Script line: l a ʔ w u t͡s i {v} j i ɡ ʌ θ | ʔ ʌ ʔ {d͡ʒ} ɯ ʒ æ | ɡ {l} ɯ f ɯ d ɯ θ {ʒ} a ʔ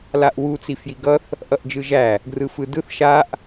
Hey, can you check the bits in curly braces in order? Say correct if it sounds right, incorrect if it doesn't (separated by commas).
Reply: incorrect, correct, incorrect, incorrect